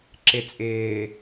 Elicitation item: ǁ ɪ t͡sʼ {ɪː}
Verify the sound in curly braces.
correct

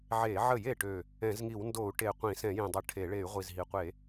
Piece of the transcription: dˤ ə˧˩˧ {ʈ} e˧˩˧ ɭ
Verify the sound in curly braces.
incorrect: ʈʰ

